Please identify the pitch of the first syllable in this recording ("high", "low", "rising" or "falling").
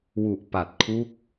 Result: low